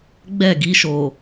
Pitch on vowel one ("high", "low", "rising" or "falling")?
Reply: falling